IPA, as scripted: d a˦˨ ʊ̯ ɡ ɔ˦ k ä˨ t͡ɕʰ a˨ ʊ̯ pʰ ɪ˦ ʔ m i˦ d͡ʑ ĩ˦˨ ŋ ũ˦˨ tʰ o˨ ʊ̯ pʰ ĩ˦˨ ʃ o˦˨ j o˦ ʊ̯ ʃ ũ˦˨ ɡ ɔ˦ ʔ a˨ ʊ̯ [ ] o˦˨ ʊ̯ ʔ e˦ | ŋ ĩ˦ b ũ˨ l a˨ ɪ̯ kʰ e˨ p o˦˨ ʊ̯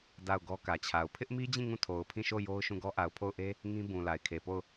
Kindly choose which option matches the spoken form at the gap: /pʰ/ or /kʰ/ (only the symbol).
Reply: pʰ